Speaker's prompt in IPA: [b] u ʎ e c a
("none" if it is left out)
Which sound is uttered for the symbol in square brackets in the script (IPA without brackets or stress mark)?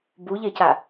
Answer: b